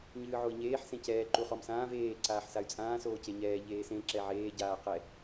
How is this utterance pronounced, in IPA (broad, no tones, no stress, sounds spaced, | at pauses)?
ɲ ɨː ʕ o i̯ ɲ eː ħ s ẽ c ɛː ǃ u χ ɔ m s ãː v eː ǀ aː ħ s a y̯ t͡sʼ ãː s oː c e ɲ ɛː ʎ eː s ẽ ǁ ɛ ʕ eː ɟ aː q ɛ